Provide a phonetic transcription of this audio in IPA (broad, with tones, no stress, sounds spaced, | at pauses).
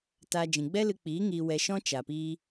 t a˧ d͡ʒ ĩ˨ ɡ͡b ɛ˦ l ɨ˧ k͡p iː˨˦ ŋ iː˧ w ɛ˧ ʃ ɔ̃˦ t͡ʃ a˨ p iː˧